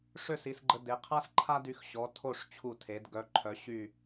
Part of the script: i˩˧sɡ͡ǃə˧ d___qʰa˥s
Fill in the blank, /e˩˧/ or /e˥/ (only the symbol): e˩˧